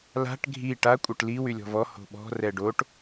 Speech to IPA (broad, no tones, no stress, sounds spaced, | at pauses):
l a̤ ʈ ɡʱ i ʈ a kʷʼ œ ʈ l i w y lʲ ɔ̤ v ɔ h o̤ ɓ ɔ̤ r ɛ ɖ o ʈ